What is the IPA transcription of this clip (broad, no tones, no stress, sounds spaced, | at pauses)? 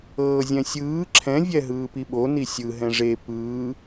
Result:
ɤː zʲ ɛ̃ sʲ ɯː ǁʰ ɛ̃ vʲ ɛ ɦ ɯː p i ɓ o n i sʲ ɯ ɦ ɛ̃ ʐ e p ɯː